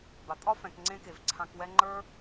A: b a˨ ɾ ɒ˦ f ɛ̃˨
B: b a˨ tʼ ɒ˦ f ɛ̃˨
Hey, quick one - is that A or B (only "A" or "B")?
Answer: B